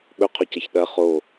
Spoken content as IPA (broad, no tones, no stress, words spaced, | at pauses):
ɓɵqʰɵcɐç ɗɐ χo